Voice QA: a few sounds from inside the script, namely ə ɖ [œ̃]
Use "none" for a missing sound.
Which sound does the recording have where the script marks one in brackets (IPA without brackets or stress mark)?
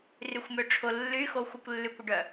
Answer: œ